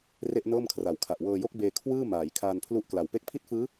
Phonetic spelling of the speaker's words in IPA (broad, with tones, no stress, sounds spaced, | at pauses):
r e˥˩ ʔ n ɤː˥˩ m kʰ r a˨˩ w kʰ a˨˩ ʔ w ɤː˧ j o˥˩ k̚ b eː˧ kʰ w ɯː˥˩ m aː˩˦ j kʰ aː˧ n pʰ l u˦˥ ʔ k l a˨˩ w p e˦˥ k̚ pʰ i˥˩ t̚ f ɯː˦˥